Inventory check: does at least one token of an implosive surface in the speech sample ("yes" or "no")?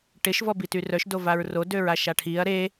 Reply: no